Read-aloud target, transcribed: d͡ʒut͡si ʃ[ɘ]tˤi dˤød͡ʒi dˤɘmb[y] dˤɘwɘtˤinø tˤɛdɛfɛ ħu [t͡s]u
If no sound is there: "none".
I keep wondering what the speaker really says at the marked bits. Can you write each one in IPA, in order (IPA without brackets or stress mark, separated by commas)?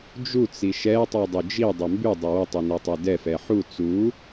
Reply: ɛ, y, t͡s